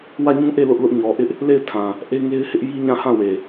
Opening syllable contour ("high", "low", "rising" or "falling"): falling